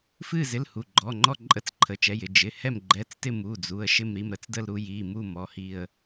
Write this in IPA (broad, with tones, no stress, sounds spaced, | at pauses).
f ɨ˦˨ z ɪ˩˧˩ l h u˩˧˩ ɡ͡ǃ ɔ˩˧˩ ŋ͡ǃ ɔ˦˨ ǃʼ ə˦˨ t͡s ǃʰ ə˩˧˩ t͡ʃ ɛ˩˧˩ j ɪ˦˨ d͡ʒ ɪ˩˧˩ h ɛ˦˨ m ɡ͡ǃ ɛ˩˧˩ t͡s t ɪ˦˨ m u˩˧˩ d͡z u˩˧˩ ə̯ ʃ ɪ˦˨ m ɾ i˦˨ m ɾ ə˩˧˩ t͡s d ə˦˨ l ɾ u˦˨ j i˩˧˩ m u˦˨ m ɔ˩˧˩ h i˦˨ ə̯